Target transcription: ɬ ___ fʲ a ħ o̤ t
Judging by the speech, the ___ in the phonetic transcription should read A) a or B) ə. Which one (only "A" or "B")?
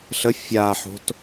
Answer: B